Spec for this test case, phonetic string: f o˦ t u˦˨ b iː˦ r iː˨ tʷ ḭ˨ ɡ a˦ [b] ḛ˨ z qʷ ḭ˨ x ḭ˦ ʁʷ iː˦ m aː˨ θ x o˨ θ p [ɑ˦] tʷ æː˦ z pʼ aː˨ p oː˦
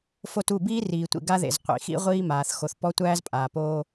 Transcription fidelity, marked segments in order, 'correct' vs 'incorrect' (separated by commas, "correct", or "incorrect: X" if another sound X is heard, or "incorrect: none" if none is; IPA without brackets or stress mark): incorrect: ð, incorrect: ɔ˦